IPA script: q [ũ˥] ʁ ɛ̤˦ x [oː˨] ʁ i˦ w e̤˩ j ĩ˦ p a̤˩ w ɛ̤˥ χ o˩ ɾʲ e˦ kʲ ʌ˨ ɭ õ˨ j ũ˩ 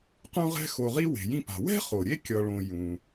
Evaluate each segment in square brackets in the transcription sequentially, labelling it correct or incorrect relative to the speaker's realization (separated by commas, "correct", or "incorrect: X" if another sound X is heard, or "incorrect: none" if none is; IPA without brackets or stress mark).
incorrect: ũ˦, incorrect: o˨